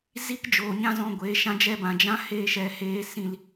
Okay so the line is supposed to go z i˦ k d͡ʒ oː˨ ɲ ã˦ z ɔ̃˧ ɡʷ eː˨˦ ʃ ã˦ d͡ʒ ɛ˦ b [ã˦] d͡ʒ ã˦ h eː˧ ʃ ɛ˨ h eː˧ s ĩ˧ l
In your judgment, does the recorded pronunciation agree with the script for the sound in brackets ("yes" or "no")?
no